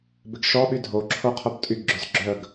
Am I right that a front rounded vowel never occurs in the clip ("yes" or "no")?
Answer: no